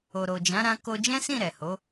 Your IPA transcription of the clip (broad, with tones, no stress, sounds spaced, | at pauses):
o˨ ɾ o˨ d͡ʒ ã˨˦ ɾ ã˧ k o˧ d͡ʒ ɛ̃˦ s ĩ˦˨ ɾ ɛ˨ h o˨˦